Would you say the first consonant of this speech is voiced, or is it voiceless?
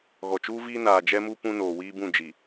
voiced